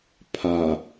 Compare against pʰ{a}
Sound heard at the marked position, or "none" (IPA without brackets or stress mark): a